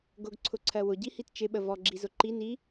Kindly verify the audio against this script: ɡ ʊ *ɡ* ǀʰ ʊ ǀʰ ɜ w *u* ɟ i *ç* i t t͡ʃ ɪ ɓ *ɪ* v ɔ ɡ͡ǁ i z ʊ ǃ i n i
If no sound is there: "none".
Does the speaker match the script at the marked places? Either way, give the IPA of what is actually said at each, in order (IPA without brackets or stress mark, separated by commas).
ɡ, ʊ, h, ə